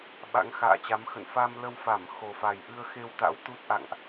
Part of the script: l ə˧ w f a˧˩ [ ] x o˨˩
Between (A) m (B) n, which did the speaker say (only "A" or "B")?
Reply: A